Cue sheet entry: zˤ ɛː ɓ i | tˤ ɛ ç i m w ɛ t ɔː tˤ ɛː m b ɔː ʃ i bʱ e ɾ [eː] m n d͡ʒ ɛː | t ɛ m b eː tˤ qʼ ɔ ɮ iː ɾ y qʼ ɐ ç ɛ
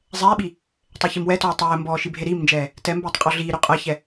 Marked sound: incorrect: iː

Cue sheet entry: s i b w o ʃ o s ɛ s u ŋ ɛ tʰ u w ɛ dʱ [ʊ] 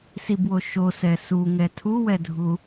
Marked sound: incorrect: u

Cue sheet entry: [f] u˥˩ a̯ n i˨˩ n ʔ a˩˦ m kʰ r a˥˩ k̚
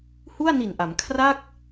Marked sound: incorrect: h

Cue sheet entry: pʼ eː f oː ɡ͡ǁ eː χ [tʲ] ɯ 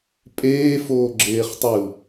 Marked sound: incorrect: tˤ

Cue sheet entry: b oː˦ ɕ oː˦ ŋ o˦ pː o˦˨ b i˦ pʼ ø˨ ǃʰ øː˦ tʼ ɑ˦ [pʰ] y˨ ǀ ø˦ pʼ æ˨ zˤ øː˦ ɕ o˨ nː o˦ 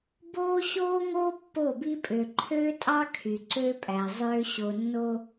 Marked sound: incorrect: kʰ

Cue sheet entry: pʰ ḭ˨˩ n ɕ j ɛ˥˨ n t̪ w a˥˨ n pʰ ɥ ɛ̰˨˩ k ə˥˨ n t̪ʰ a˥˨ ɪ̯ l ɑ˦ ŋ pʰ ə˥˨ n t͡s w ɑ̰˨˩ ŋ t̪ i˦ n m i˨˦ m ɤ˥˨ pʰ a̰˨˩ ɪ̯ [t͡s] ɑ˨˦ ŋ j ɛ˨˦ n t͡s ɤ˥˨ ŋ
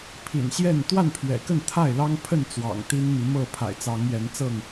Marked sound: correct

